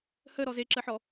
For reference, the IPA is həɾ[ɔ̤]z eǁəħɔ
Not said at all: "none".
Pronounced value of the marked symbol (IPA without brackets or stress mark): ɔ